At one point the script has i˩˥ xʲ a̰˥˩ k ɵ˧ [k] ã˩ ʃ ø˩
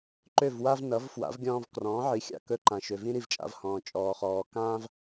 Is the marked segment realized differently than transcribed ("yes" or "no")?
yes